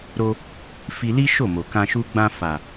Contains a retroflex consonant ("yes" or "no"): no